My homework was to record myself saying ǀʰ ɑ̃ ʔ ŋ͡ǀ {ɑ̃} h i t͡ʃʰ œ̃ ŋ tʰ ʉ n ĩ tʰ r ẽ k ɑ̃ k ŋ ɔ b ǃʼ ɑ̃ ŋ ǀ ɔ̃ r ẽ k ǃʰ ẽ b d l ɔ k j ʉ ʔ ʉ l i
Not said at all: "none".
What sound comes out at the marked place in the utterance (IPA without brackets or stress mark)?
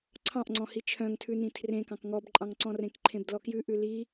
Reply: ɔ̃